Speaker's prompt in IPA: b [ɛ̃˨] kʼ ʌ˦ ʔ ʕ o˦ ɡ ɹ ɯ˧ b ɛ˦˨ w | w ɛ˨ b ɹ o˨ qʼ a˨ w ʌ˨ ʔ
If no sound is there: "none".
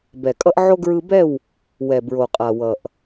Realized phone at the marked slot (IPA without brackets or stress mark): ɛ˨